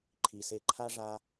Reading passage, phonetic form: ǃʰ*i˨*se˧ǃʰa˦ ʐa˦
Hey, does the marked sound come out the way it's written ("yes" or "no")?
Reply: yes